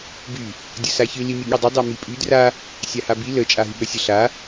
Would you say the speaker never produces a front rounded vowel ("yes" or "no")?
no